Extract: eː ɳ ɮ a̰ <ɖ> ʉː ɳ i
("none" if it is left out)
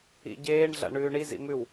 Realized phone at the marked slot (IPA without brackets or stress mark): ɳ